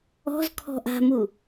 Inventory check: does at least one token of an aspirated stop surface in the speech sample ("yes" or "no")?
yes